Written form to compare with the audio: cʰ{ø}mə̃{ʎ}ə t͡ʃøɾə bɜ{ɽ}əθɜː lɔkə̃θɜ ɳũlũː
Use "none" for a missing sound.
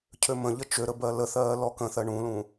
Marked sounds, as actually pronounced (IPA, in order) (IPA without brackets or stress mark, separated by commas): ø, ʎ, l